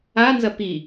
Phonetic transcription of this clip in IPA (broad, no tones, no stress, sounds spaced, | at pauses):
a n z ɐ p i